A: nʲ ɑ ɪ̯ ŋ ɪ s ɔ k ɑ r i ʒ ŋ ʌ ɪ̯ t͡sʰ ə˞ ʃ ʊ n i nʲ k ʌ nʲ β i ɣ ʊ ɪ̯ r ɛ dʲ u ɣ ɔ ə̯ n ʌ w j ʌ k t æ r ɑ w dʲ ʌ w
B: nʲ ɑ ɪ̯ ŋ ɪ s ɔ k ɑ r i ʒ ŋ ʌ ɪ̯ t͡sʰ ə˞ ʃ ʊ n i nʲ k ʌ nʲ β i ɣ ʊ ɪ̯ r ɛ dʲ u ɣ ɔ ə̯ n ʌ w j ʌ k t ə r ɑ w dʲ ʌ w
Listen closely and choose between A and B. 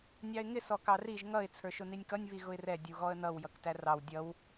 A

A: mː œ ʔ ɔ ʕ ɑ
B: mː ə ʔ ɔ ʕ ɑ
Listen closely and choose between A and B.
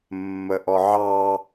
B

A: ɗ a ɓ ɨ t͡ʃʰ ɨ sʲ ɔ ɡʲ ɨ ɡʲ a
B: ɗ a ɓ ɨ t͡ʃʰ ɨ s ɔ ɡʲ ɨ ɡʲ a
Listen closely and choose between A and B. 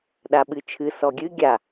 B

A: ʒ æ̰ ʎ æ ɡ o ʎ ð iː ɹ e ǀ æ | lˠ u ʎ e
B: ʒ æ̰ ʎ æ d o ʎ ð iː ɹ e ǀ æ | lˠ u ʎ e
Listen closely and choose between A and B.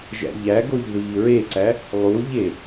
A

